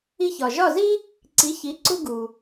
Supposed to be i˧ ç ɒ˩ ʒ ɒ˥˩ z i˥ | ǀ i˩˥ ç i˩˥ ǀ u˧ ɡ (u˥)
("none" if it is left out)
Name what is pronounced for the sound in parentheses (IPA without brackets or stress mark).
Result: u˩